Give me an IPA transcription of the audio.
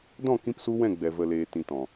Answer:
d ɔ̃˦˨ k ĩ˦ p s u˦ w ɛ̃˦˨ ɡ͡b ɛ˨ v ə˨ l eː˨ t ĩ˨ t ɔ̃˨

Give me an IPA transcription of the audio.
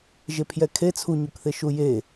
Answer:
ʒ e pʰ j ɛ kʰ e t͡sʰ u ɲ u k θ e ʃ u j e

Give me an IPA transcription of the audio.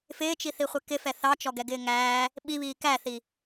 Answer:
f ɪː t͡ʃ i θ i χʷ ɛ k ɪ f ɛ θ ɑ t͡ʃ ɔ ɡ ɛ ɡ ɪː ŋ æː | ɓ i β iː k æ θ i

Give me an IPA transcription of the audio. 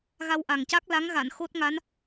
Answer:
ɣ a˧ w ʔ a˨˩ ŋ c a˦˥ k̚ l a˧˥ ŋ ɣ a˨˩˨ n x o˦˥ t̚ ŋ a˧˥ n

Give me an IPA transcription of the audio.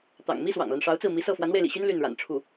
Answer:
t̪ ɑ̰˨˩ ŋ m i˥ s w ɑ̰˨˩ ŋ l a˦ n ʂ ɑ˧˥ ʊ̯ t͡s ɹ̩˥˩ m i˧˥ s ɤ˥˩ f w a˧˥ n w e˧ ɪ̯ l ḭ˨˩ ɕ y˥ n l y˥˩ n ɻ a̰˨˩ n ʈ͡ʂʰ u˥˩

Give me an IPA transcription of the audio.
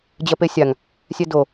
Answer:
d͡ʑ ɜ p e sʲ a ŋ | sʲ ɛ d o

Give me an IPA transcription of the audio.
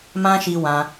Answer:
m ã˦ ʃ i˧ w ã˧

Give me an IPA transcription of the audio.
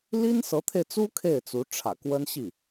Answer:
l i˥ n s ɤ˧˥ t̪ʰ e˧ ɪ̯ t͡s u˥ kʰ e˥˩ ɪ̯ t͡s u˧˥ ʈ͡ʂʰ ä̰˨˩ k w ə˥ n ɕ i˥˩

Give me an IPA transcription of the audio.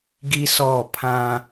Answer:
ɡ i˦ s ɔ˦˨ pʰ ã˦

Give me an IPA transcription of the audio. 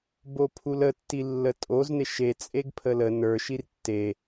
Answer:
b o pʰ u l ə tː i lː ə tʼ o z n e ʃ e t͡sʼ e ɡ pʰ ə l ə n ə˞ ʃ i r tː e

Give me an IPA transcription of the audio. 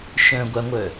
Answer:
ʃ œ̃ ɡʷ a ŋʷ œ

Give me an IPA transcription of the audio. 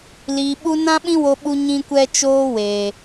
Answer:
l iː˨ ɓ u˧ n ã˦ ɓ ĩ˦ w o˧ ɓ u˧ ɲ ĩ˦ kʷ ɛ˦ t͡ʃ oː˦ w eː˨

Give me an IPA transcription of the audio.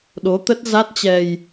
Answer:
ɗ o˨˦ t̪ ə˦˥ t̚ z a˦˥ t̚ t͡ɕ ɛ˧ j

